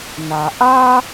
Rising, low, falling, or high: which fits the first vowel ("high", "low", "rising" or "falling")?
low